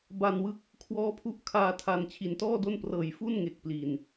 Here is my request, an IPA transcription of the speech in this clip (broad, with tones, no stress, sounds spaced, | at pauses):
b a˧ n w ɯ˦˥ k̚ | kʰ w ɔː˦˥ pʰ u˦˥ ʔ kʰ aː˧ tʰ a˧ n t͡ɕʰ i˨˩ n t ɔː˥˩ d o˥˩ n p r ɤː˨˩ j f u˥˩ n ŋ e˨˩ k̚ p l i˨˩ n